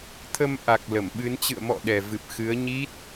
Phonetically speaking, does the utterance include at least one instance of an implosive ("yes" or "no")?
yes